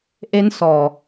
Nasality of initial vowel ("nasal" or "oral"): oral